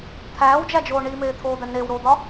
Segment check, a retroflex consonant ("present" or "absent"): present